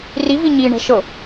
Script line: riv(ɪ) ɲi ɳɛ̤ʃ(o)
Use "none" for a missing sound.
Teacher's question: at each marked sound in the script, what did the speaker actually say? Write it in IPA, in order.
i, ɤ

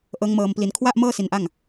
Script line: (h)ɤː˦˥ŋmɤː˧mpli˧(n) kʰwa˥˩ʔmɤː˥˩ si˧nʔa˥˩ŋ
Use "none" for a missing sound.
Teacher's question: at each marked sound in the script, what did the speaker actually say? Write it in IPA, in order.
ʔ, n

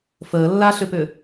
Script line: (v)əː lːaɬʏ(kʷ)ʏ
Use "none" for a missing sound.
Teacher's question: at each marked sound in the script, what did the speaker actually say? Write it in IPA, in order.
f, p

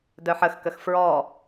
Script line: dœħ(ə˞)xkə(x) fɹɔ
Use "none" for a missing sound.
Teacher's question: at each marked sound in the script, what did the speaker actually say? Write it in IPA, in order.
ə, x

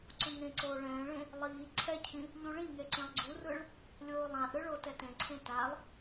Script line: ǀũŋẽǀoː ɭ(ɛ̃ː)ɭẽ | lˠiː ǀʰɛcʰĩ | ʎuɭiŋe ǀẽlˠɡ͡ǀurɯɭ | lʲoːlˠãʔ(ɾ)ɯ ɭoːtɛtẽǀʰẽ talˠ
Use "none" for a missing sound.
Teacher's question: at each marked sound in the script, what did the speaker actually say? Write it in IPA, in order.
ɛ̃ː, ɾ

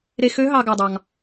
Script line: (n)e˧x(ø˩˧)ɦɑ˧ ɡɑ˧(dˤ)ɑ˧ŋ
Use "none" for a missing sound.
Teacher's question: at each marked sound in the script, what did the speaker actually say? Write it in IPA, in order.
ɾ, ø˧˥, dˤ

